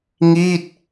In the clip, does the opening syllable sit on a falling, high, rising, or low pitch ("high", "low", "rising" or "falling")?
falling